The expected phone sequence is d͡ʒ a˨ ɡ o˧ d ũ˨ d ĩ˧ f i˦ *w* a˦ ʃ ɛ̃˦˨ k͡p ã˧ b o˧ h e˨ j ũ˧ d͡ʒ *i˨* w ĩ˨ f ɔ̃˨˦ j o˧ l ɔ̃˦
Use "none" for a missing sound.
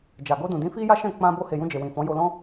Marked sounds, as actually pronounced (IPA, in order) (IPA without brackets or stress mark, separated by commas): j, e˨